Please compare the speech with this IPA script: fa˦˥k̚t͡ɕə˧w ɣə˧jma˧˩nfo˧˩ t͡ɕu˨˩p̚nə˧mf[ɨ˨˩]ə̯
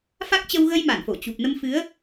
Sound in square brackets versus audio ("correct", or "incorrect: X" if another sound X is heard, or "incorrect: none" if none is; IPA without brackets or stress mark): incorrect: ɨ˨˦